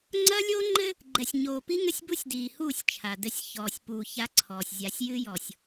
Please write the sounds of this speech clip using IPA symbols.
ŋ͡ǀɐ˦lʲo˦ ŋ͡ǃɘ˦ | ɡ͡ǃɛ˨sʲɲoː˨pi˦ŋɘ˦sʲ bu˦sʲdiː˨huː˦˨sʲ t͡ʃʰa˨dɘ˦sʲ çɔː˨sʲpu˨ ça˦ǀʰɔː˨sʲ zʲa˨sʲjɨ˦jɔ˨sʲ

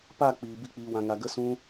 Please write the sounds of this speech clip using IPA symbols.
pa˦˨ k͡piː˨ bi˦k͡piː˧wã˧ŋa˧ ɡə˦sũ˦

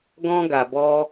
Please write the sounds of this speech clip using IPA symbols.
ɡɔ̃˧ɡa˨bɔ˧

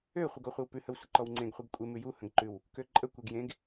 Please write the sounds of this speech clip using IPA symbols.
ø χʷəɡɔχʷɨwpʉ həwsʷəǃɔwŋ͡ǀẽɡ χʷɨɡkʷʼe mʉju hə̃ɡǃʉw | køǃʼə kʷeɡjẽɡ

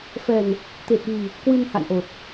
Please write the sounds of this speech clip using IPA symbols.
fɛ˨˩n | t̪e˨˩t̚ɣi˨˩ | kwɨ˧nha̰˧˨nʔo˨˩t̚

